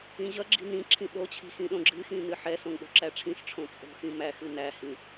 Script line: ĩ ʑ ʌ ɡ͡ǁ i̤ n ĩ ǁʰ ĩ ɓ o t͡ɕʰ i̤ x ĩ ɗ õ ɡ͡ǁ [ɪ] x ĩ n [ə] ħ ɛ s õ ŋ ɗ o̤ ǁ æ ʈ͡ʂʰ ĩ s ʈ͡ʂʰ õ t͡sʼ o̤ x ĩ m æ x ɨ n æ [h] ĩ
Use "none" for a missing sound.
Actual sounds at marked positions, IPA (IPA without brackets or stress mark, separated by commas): ɨ, ɨ, h